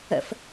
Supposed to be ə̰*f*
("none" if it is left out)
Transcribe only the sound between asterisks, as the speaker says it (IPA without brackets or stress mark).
f